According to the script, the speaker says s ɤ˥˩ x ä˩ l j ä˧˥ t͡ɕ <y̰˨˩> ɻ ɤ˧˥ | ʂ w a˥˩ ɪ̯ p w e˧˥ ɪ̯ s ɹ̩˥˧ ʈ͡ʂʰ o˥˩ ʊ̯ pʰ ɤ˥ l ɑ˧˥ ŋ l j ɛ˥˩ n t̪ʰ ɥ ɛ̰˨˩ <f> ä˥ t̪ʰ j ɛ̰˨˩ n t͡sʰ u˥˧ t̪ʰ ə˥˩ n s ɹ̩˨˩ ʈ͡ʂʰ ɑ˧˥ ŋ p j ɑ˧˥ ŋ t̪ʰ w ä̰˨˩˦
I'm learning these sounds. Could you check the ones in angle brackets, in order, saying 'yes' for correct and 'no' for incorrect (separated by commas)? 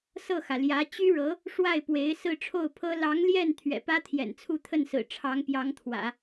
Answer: no, no